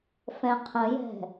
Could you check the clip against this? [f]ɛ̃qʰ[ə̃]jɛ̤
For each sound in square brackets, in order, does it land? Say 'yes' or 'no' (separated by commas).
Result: yes, yes